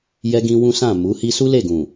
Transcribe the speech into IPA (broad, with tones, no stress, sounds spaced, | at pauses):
j ɛ˦ ɡ ĩ˦ w ũ˦ s ã˦˨ m u˨˦ h i˦ s u˦ l e˦˨ ɡ ũ˨